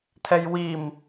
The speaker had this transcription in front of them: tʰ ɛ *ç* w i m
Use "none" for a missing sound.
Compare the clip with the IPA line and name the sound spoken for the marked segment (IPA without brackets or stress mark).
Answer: j